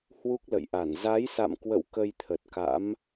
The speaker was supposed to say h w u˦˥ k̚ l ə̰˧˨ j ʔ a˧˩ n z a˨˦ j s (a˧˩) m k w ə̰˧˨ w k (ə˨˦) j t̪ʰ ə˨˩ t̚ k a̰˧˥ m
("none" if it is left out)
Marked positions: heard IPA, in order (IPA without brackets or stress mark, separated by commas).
a̰˧˨, ə˧